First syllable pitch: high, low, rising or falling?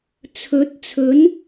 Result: rising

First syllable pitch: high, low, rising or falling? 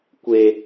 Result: low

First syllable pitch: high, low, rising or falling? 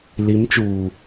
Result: rising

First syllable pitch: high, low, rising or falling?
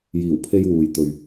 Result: low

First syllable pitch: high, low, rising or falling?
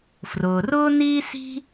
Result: low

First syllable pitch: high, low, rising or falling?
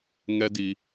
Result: high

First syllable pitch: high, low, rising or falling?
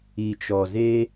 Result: low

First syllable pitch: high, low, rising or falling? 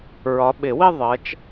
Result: rising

